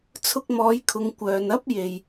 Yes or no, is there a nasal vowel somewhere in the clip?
no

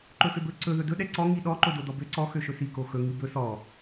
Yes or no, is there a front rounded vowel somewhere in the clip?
yes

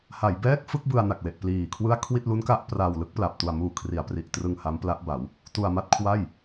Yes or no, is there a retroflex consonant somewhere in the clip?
no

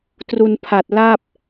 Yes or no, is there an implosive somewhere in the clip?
no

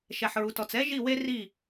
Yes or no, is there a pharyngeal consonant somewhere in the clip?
yes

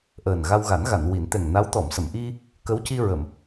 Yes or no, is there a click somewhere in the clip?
no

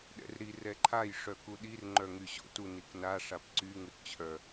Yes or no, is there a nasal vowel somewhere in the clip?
no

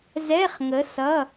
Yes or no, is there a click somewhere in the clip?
no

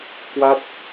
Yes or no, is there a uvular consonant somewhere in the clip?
no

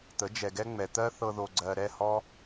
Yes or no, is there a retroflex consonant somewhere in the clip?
no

